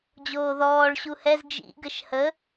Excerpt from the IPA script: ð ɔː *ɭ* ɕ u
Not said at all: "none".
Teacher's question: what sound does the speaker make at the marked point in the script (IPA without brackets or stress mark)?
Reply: ɭ